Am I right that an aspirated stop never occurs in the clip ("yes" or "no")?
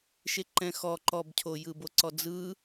no